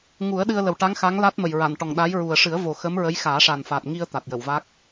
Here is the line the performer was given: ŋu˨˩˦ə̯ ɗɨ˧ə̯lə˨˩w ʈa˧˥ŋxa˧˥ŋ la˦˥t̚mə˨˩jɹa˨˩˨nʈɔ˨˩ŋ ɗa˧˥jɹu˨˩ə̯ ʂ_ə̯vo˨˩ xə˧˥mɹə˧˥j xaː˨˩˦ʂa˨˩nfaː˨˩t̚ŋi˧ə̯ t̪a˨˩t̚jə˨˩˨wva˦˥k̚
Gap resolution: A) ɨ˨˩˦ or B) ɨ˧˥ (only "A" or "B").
A